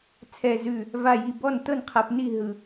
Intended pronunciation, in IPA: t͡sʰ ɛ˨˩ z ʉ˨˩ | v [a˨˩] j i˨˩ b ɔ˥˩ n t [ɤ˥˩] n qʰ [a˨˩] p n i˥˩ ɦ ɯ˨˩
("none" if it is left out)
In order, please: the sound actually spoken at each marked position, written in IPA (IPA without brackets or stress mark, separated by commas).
a˨˩, ɤ˥˩, a˨˩